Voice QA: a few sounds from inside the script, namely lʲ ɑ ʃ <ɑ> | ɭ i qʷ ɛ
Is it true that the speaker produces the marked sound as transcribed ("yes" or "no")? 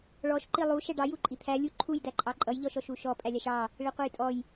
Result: yes